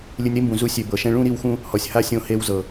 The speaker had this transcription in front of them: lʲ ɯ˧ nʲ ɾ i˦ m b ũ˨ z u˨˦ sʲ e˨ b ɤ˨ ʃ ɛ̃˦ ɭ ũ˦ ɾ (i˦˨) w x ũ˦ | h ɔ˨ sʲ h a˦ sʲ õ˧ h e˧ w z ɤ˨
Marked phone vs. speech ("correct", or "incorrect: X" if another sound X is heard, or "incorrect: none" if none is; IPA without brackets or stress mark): correct